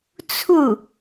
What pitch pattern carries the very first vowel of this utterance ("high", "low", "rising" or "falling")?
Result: falling